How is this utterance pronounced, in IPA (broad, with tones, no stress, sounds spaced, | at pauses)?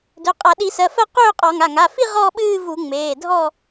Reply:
d ø˩˧˩ qʼ a˧˩˧ ɗ i˧˩˧ s ɜ˩˧˩ f ɜ˥˧ q øː˥˧ qʼ ɔ˧˩˧ ŋ a˩˧˩ ŋ a˩˧˩ f i˥˧ ʁ ɔ˥˧ ɓ ɨː˥˧ v u˧˩˧ ŋ͡m eː˩˧˩ dʱ ɔ˥˧